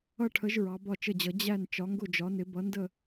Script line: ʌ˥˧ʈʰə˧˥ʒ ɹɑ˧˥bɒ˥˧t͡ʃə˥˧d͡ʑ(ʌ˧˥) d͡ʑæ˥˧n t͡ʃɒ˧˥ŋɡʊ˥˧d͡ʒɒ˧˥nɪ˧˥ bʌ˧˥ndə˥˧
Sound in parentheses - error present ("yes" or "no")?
no